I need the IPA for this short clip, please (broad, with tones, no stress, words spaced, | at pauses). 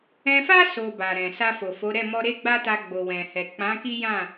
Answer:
ɛ̃˧fa˦ so˧ba˨ɾɛ̃˨ sa˧fo˨fo˨˦ɾɛ˦˨ mɔ˧ɾe˦ɡ͡ba˦ta˧ ɡ͡bo˨wɛ̃˨hɛ˨ k͡pã˨˦ki˦ jã˦˨